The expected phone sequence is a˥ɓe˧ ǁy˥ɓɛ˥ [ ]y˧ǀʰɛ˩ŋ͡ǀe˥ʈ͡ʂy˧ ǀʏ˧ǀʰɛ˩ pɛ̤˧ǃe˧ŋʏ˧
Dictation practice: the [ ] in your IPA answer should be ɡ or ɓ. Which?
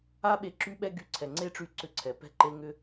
ɡ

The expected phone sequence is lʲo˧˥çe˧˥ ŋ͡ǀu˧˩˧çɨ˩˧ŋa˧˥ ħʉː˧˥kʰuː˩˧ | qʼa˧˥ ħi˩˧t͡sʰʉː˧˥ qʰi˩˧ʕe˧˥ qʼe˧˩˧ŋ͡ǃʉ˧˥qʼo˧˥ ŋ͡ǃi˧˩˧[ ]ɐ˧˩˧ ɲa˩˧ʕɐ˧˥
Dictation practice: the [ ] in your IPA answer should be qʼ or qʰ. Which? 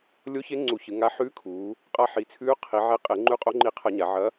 qʰ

